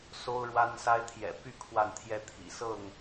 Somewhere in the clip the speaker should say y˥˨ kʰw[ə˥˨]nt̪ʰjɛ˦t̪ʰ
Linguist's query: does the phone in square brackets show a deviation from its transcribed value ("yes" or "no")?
yes